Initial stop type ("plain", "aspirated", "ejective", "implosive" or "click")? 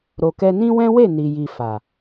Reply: plain